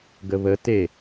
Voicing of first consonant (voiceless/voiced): voiced